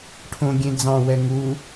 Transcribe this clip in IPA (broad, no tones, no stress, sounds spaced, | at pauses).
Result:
ʈʰ õ ɡʲ ẽ d͡z ɑ̃ w ɛ ŋ u